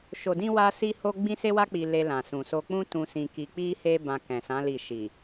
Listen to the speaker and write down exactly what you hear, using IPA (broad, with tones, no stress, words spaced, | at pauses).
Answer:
ʃo˨dĩ˧ wa˧si˧ho˧ ɡ͡bĩ˦se˦wa˦ k͡pi˧le˧ lã˨sũ˨so˧k͡pũ˦ tũ˧sĩ˧ki˧ k͡pi˧he˧ bã˧kɛ̃˨sã˨˦ li˦˨ ʃi˨